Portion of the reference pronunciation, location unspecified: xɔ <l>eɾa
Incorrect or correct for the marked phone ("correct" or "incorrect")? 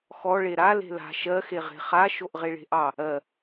incorrect